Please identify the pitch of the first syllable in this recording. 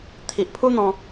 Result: low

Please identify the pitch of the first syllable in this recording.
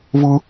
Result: high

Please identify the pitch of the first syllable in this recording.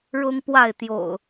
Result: high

